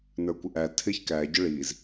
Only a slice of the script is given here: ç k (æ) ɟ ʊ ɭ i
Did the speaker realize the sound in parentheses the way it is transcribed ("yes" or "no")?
yes